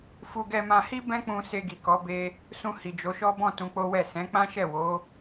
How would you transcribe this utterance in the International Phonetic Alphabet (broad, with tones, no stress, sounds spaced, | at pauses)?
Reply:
f u˧ ɡ ɛ˧ m ã˧ h i˦ b ɛ̃˦ k͡p ũ˧ s e˧ ɡ i˨ k ɔ˨˦ b e˧ | s ũ˧ h i˨ d͡ʒ o˨˦ ʃ ɔ˦ b ɔ̃˦˨ t ũ˧ k͡p o˦ w ɛ˦˨ s ɛ̃˨˦ k͡p ã˦ ʃ ɛ˦˨ w o˨˦